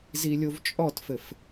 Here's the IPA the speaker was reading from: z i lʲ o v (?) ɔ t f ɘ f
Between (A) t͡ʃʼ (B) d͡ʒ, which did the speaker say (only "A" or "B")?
A